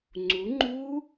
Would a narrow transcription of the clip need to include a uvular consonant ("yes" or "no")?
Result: no